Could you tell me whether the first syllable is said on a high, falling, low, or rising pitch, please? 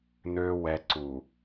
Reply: high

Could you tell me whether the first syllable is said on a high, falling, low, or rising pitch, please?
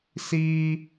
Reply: high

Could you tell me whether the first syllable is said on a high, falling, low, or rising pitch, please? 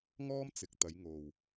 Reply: high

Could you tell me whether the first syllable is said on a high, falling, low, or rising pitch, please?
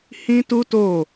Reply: high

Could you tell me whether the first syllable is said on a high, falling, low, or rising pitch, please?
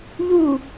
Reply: falling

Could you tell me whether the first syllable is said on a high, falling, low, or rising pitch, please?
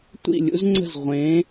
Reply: falling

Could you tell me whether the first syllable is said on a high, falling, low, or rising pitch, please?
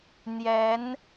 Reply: rising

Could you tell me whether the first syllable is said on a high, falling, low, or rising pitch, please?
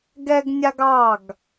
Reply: high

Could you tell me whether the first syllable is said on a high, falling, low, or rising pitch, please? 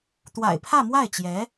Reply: low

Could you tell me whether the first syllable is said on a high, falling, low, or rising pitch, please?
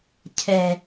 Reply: low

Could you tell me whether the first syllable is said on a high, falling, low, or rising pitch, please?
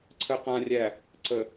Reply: low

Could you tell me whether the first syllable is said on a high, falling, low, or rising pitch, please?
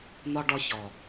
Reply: high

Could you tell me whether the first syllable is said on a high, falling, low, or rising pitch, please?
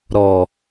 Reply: low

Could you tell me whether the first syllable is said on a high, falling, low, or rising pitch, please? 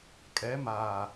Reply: rising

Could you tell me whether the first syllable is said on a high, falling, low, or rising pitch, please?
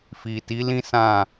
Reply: low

